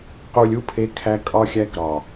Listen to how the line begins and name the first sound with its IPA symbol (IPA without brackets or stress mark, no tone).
q